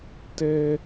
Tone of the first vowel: high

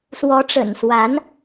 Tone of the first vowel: rising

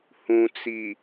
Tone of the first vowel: low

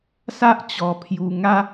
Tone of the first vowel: high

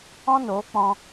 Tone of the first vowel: high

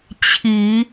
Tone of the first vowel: low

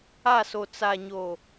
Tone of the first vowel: falling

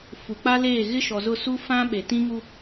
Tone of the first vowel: low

